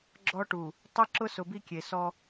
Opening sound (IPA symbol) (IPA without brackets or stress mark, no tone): ɡ͡ǁ